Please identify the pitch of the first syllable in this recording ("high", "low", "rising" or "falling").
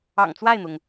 low